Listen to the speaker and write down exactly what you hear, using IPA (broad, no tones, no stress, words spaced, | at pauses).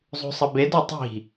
zˤṳsˤɐbedɔ tˤi̤